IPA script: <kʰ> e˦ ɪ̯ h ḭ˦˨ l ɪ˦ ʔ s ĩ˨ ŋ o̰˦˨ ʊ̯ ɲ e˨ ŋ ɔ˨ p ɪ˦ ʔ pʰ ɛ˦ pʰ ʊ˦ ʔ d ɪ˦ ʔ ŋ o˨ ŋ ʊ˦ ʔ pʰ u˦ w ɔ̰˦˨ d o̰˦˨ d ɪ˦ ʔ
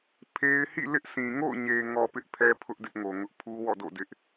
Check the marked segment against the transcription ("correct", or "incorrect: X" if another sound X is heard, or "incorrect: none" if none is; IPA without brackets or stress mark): incorrect: pʰ